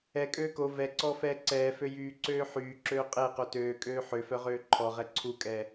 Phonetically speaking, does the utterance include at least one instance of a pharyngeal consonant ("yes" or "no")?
yes